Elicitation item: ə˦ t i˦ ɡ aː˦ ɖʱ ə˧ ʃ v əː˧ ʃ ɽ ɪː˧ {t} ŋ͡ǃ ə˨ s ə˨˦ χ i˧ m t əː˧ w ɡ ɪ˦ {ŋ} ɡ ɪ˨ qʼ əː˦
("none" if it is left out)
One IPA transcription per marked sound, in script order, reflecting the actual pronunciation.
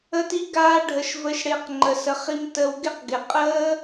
q, q

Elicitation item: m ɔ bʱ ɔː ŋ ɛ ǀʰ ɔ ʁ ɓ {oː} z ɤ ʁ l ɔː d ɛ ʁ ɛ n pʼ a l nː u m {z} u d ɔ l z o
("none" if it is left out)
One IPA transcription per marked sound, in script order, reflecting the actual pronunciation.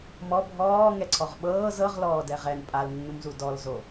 ɤː, z

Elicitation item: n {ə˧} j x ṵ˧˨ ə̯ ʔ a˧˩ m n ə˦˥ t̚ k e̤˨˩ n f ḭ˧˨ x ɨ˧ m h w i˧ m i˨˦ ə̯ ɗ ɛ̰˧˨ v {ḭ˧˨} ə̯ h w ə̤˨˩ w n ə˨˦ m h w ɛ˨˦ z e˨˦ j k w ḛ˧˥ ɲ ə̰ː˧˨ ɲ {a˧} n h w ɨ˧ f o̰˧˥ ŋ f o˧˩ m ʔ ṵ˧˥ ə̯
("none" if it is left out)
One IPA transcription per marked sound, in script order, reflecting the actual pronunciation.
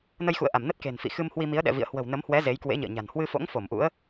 ə˧, ḭ˧˨, a̤˨˩

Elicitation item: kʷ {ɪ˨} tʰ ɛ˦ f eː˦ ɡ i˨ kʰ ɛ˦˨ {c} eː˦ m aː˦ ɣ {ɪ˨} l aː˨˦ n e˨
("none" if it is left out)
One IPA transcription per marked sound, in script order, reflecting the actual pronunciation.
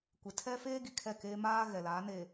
ɪ˨, k, ɛ˨

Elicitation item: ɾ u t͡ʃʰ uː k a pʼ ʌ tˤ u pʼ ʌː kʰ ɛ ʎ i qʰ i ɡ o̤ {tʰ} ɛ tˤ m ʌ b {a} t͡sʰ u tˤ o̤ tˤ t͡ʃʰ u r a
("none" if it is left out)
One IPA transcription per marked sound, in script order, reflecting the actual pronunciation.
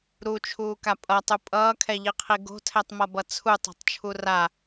tʰ, ʌ

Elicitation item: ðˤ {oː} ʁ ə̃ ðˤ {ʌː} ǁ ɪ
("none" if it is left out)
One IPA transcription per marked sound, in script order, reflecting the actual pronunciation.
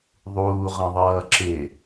uː, ʌː

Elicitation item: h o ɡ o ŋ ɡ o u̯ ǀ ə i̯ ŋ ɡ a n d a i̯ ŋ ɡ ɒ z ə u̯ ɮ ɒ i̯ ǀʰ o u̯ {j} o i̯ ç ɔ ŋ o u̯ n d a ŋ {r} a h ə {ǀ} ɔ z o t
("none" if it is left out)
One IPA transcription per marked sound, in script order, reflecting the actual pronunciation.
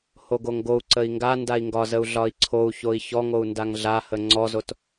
ç, ɮ, ŋ͡ǀ

